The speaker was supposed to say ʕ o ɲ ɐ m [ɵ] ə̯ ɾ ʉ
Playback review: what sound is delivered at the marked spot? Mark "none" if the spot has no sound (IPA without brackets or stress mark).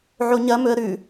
ɵ